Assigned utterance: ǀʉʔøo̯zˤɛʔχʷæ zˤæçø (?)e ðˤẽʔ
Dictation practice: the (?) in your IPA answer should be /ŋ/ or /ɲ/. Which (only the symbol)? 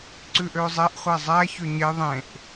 ɲ